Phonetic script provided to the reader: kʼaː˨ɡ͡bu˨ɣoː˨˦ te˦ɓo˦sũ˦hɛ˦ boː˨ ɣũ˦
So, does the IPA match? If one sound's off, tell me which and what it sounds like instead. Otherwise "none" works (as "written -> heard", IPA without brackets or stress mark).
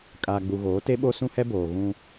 none